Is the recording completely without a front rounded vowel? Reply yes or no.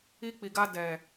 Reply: yes